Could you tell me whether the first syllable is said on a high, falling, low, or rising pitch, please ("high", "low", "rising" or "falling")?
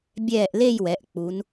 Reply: falling